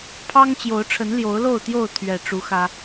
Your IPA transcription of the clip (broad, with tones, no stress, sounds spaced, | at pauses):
pʰ ɑ˦ ŋ t͡ɕ j o˨˦ ʊ̯ ʈ͡ʂʰ ə˨˦ n l j o˨˦ ʊ̯ l o˥˨ ʊ̯ t̪ j o˥˨ ʊ̯ t̪ʰ ɥ ɛ˨˩ ʈ͡ʂ u˨˦ x ä˦